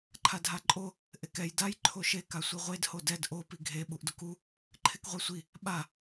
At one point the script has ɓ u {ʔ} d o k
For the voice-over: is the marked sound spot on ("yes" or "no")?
yes